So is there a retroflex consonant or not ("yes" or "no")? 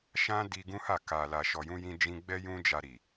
no